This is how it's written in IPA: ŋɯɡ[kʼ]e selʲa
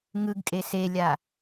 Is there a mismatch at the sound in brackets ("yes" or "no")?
no